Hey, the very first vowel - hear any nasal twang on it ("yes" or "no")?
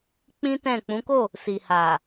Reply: yes